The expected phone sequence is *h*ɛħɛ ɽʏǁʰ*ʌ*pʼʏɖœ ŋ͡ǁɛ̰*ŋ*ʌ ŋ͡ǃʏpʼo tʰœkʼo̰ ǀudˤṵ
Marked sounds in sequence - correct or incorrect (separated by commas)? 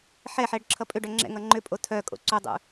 incorrect, correct, correct